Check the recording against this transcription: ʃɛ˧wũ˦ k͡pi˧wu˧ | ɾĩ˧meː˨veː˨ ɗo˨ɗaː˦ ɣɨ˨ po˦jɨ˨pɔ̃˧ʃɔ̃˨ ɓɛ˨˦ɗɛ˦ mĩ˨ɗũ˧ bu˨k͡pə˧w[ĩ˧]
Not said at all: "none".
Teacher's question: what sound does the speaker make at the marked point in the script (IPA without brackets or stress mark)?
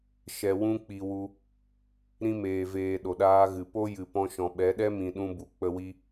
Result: i˧